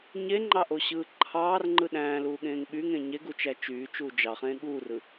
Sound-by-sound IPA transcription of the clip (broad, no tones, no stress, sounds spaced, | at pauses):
ɲ e ŋ͡ǃ ɑ ʔ o ɕ ɯː ǃʰ ɑː r ŋ͡ǃ ɯ ɗ æ̃ː l uː ɠ ẽː ŋ ɓ y ŋ ẽ ɲ e ɡ u t͡ʃ æ t͡ʃ yː t͡ʃ uː d͡ʒ ɑ χ ẽː ɠ uː r ɯ